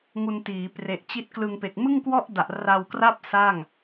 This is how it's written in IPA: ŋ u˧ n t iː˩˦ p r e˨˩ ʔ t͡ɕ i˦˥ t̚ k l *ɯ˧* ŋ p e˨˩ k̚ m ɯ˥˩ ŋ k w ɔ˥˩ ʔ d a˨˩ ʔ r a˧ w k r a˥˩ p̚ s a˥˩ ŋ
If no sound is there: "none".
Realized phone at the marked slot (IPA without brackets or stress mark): ɯ˧